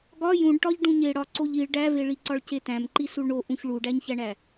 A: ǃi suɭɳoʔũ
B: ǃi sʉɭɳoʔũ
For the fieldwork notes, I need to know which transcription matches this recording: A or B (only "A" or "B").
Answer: A